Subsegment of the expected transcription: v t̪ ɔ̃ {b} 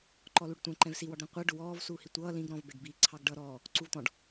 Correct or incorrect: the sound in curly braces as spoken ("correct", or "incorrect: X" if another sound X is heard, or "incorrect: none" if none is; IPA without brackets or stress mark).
incorrect: ɖ